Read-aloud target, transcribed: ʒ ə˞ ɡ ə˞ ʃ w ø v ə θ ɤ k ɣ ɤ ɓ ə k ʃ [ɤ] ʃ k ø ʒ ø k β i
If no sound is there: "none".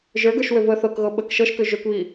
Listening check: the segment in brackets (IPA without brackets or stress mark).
ɤ